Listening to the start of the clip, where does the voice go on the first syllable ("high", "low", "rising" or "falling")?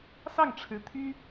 falling